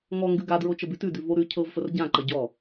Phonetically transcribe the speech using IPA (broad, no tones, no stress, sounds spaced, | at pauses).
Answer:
ŋ ɔ ŋ ɡ ʉ ɡ a d ɹ o t͡ʃ ə b ʉ t ʉ d ʉ v o ɾ ʉ cʰ ɤ v f ə r ɟ ã ǃ ɐ ɟ ɔ